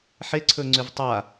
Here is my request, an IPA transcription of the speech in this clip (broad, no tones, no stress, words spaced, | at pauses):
ħe ǀʰɵŋ͡ǀʉvtˤa